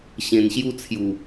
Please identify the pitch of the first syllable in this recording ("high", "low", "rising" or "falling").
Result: low